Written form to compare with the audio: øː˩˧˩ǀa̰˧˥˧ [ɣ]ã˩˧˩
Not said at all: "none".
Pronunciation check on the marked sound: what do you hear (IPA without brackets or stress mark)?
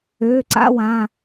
w